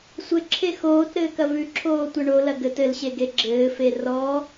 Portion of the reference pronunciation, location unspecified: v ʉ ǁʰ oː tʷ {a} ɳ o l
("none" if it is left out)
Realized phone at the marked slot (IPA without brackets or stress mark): ɐ